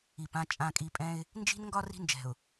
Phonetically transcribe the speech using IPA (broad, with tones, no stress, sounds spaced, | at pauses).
i˨ p ã˦ t͡ʃʼ ã˨ kʼ i˨ pʼ ɛ̃˦ ɪ̯ | n d͡ʒ i̤˦ n ŋ ɡ ɒ˦ r i̤˦ n d͡ʒ ɛ̤˨ ʊ̯